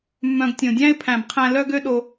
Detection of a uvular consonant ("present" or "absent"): present